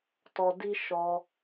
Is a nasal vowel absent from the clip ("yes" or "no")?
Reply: yes